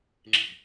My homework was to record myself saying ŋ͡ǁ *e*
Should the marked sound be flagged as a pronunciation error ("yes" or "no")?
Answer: yes